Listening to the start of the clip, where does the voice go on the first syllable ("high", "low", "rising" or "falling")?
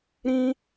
high